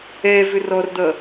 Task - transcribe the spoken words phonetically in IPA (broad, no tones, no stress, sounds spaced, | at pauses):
ɛ v ʏ r ɔ r d̪ ʌ